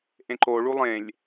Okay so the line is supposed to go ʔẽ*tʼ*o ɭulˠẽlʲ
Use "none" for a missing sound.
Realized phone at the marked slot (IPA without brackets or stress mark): ǃ